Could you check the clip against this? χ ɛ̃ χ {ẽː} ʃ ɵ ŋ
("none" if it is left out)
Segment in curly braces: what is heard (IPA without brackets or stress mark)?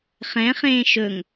ẽː